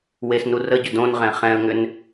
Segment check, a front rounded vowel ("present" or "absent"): present